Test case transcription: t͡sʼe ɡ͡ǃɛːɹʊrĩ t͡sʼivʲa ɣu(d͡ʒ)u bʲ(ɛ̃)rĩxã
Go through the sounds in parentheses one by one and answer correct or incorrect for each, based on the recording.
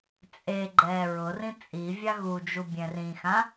correct, correct

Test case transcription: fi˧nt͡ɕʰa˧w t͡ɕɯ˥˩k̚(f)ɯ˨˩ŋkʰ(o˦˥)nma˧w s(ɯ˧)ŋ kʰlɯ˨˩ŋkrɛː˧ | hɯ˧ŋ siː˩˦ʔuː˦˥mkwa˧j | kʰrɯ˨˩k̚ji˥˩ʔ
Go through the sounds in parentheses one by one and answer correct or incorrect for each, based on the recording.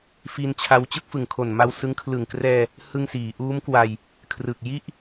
correct, incorrect: o˨˩, incorrect: ɯ˦˥

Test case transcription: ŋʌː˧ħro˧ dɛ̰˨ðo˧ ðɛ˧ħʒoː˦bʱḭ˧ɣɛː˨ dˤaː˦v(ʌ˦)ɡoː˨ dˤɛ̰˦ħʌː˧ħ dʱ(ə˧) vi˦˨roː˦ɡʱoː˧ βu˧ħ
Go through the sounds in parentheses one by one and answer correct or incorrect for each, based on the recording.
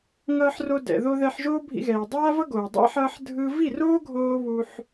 correct, incorrect: ɯ˧

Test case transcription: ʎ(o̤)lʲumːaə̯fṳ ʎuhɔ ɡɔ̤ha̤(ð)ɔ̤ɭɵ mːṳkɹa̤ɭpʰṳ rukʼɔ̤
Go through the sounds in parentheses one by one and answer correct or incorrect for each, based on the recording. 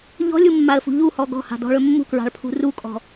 incorrect: ɔ̤, incorrect: d

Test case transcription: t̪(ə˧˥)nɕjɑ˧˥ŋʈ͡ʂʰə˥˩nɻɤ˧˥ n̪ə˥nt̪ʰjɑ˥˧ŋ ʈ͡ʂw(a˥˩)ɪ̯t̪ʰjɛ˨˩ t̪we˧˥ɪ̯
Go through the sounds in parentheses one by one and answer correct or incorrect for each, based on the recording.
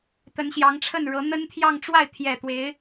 correct, correct

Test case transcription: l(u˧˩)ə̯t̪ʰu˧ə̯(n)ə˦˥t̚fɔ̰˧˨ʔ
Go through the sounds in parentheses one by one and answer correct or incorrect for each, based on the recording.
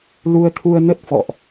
incorrect: u˧, correct

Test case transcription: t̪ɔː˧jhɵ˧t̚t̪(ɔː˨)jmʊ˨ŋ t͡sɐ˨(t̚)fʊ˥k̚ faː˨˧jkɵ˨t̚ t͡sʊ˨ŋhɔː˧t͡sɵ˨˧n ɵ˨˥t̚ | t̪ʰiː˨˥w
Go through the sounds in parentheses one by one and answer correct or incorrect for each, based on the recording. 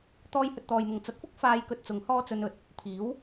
correct, correct

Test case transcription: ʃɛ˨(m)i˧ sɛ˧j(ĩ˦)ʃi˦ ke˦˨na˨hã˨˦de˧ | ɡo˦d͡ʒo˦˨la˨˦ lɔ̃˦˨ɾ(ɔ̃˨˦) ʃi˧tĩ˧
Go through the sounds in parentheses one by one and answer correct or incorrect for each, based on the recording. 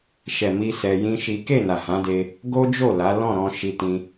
correct, correct, incorrect: ɔ̃˧

